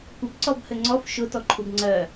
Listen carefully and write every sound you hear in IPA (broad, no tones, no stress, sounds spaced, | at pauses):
kʷ ɘ b ǀ ɔ b h ɘ ŋ͡ǀ ɔ f ʃ ʊ t ɔ ǃʰ u b ŋ͡ǀ ɜ